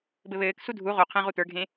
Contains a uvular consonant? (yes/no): yes